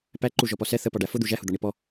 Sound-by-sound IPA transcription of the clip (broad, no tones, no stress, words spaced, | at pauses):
pæǃu ʒɔpɔsɛ θəpɒ ɖæfʊd̪u ʒæhʊd̪ɒɳi pɔ